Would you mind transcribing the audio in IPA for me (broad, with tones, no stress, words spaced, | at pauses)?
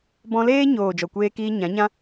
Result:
bɔ̃˧leː˦ɲoː˨ d͡ʒɔ˨kʷeː˧kiː˧ ɲã˨˦ɲã˦